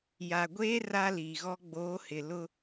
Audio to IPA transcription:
j a˨ ɡʷ eː˦ r a˦ l iː˨ ɣ ɔ˦ ɡ͡b oː˨˦ h ɪ˨ l ʊ˦

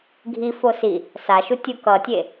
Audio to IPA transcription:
ɡʱ i f o s i | s a ʃ u tʲ u k ʌ tʲ e

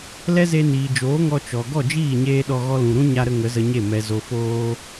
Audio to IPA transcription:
l ɛ˦ z e˧ n iː˨ d͡ʒ oː˨˦ ŋ ɔ˧ t͡ʃ ɔ˨ ɡ ɔ˦˨ d͡ʒ iː˦˨ ɲ eː˧ ɗ ɔ˧ ɣ ɔ˧ l ũ˨ ɾ ũ˦ ɲ a˧ ɾ ə˧ ŋ ə˨˦ z ə˧ ɲ e˦˨ m ɛ˨ z o˨ f oː˧

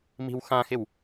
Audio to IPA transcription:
m i̤ w x ã x ɪ w

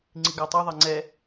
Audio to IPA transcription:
ŋ͡ǀ i ɡ a tˤ i ðˤ ɛ ŋ͡ǀ ɛ

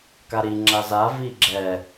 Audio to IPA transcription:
k a ɾ i ŋ͡ǁ a z a v i ɡ͡ǁ ɛ

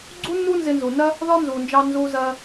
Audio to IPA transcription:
ɡ͡ǀ u˥ nː u˥ n z ɪ˧ n z u˩ n ɜ˥ | ð ɒ˥ n z u˩ n d͡ʒ ɑ˧ n z u˧ z ɜ˧

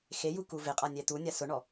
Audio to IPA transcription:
x e j u k u v ɪ qʼ a nʲ ɛ t̪ u nʲ a s ʊ ɳ ɔ

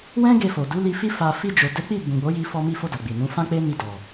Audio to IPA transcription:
w ɛ̃˦ ɡ e˧ f o˨ d u˨˦ l i˧ f i˦ f a˧ f i˧ d͡ʒ o˨ d ɛ˨˦ k͡p i˦˨ b ũ˨ ɡ͡b o˨˦ j i˧ f ɔ˧ m i˧ f o˧ d a˨ ɡ͡b i˨ n ũ˨˦ f ã˦ k͡p e˦ n i˧ d ɔ˨

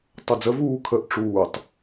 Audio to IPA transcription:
tˤ o d͡z ə v uː kʰ ə ʔ ʈ͡ʂ uː tˤ

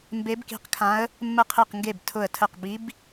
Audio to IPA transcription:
m b e˧˥ b k i̤˧˥ q kʰ ã˧˥ ə̯ | mː ə˧˩ qʰ e˧˩ q ŋ ɡ e˧˩ b tʰ ʊ˧˩ ə̯ tʰ ə˧˩ q b i˧˥ b

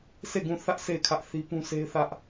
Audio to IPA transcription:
sʰ e˦˨ ɡ ũ˦˨ θ ä˦ ʔ sʰ e˦˨ ɪ̯ kʰ ä˦ ʔ θ i˦ p ũ˦ sʰ e˦ ɪ̯ θ ä˦ ʔ

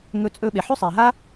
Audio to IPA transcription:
ŋ ɵ˧ t͡sʼ ɵ˧ ɓ e˩ ħ ʉ˥ sˤ e˩ ɦ a˥

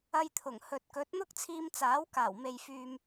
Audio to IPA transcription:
ɐ˧ j t̪ʰ ʊ˨˩ ŋ h ɵ˨ t̚ k ɵ˨˥ t̚ n̪ ʊ˥ k̚ t͡sʰ iː˧ m t͡s aː˨˥ w k aː˨˩ w m e˨ j f yː˨ m

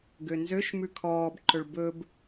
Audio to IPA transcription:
ɡ ø n z ø ʃ m ʉ kʰ ɔː b ǃ ɵ ɭ b ɵ b

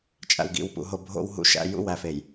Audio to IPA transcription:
t͡ʃʼ æ̰˨ w ɡ ḭ˨ w p ṵ˨ ɦ o˨ bʱ o̰˨ w ɦ ṵ˨ ʃ æ̰˨ j ṵ˦˨ w æ˨ f e˨ j

